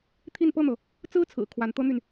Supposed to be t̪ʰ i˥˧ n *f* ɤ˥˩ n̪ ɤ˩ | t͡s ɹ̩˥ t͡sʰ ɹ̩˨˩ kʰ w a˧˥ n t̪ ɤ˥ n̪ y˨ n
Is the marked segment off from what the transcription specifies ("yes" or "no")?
yes